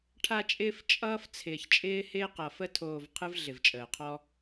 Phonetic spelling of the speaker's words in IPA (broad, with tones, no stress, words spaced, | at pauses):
ʈʰa˧t͡ʃʼɪː˧f t͡ʃʼʌː˦f t͡sʰɪː˨çt͡ʃʼɪː˦hɪː˦qʌ˨ fə˧tʰoː˨v qʰɯ˦vɮɪ˨vt͡ʃʼəː˨qʰɔ˦